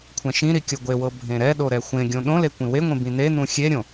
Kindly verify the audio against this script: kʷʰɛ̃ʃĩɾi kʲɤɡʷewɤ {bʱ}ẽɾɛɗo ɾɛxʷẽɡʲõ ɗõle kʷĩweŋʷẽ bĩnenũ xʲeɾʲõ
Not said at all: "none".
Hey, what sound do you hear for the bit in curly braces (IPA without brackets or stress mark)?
bʱ